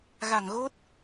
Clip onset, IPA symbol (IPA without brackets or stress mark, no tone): ɣ